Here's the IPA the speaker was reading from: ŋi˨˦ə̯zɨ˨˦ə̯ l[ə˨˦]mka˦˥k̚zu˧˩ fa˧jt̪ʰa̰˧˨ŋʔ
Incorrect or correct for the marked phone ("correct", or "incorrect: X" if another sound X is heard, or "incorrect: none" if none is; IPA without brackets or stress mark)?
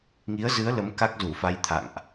correct